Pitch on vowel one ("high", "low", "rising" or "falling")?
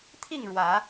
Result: falling